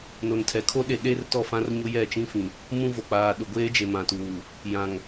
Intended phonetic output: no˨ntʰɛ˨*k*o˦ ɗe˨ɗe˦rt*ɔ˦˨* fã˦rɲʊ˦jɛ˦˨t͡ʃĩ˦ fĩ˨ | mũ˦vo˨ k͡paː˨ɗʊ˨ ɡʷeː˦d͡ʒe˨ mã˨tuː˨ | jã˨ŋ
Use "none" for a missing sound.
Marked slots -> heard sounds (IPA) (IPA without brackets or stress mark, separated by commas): kʰ, ɔ˦˨